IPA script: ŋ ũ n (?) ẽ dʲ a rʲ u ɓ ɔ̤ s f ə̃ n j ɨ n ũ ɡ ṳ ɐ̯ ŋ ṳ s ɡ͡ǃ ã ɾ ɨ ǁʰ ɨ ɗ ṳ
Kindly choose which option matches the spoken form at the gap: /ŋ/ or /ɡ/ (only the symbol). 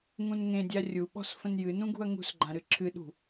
ŋ